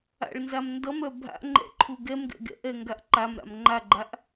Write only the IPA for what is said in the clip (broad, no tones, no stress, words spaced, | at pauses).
a̰ɭnzamndʌmœ bʱa̰ ŋ͡ǃɛ̰ǃʰuɡɛmɡɛ̰ ɡɛ̰ʔɛ ŋɡaʔǃamɾa̰m ŋ͡ǃaɡ͡ǃaʔ